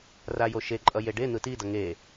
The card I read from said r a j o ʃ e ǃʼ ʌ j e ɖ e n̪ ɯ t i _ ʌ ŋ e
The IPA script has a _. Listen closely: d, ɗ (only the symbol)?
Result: d